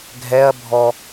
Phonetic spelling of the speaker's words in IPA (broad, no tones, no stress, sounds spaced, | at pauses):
ɡʱ ɛ ɐ̯ bʱ ɔ